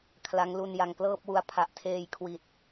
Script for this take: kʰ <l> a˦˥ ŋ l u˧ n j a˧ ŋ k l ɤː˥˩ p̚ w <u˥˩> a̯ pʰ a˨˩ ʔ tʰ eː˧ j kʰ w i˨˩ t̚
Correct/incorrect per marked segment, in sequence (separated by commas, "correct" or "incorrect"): correct, incorrect